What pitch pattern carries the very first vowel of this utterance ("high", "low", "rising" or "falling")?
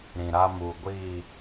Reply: low